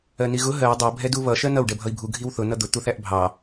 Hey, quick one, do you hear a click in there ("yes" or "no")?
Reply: no